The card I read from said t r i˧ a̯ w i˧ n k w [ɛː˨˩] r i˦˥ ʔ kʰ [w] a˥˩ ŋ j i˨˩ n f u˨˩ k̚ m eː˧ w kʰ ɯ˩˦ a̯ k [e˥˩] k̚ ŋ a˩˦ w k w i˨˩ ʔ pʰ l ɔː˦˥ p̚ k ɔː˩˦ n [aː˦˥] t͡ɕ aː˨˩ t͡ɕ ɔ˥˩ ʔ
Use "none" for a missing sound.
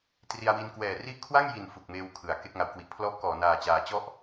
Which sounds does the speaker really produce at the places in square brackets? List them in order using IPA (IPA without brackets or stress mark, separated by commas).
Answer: ɛː˨˩, w, e˥˩, aː˨˩